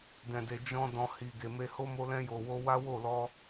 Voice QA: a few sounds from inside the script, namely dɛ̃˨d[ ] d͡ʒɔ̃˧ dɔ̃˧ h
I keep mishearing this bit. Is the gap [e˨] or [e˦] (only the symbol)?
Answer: e˨